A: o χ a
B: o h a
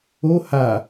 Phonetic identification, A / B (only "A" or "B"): B